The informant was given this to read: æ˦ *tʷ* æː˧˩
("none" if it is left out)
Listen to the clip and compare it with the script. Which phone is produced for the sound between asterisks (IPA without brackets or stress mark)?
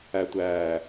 tʷ